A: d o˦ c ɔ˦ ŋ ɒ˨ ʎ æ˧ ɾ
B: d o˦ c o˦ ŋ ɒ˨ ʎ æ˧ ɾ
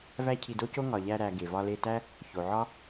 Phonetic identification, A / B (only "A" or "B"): B